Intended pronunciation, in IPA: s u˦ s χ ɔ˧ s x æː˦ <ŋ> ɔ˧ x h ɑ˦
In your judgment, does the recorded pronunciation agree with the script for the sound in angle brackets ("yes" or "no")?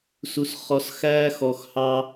no